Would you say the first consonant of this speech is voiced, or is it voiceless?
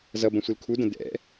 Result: voiced